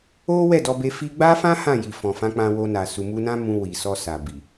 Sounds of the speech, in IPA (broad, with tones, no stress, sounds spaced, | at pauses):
o˦ w ɛ˦˨ d ɔ˧ b e˧ f i˧ ɡ͡b a˦ f ã˦ h ã˦˨ j i˨ f ɔ̃˨ f ã˧ k͡p ã˧ w o˧ n a˨ s u˧ m u˧ n ã˦ m ũ˧ w i˨ s ɔ˧ s a˨ b i˨